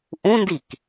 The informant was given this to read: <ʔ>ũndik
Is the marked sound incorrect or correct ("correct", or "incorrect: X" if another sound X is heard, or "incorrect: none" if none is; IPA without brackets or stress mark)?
correct